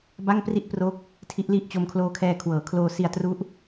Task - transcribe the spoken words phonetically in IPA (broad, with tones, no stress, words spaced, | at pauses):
ba˥˩ŋpri˥˩ʔpro˦˥k̚ | tʰi˦˥ʔli˥˩ʔ t͡ɕo˧mkʰloː˧kʰɛː˧ kʰwɤː˩˦ kʰloː˧si˧a̯tru˦˥ʔ